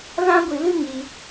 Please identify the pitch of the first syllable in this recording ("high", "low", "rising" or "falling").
high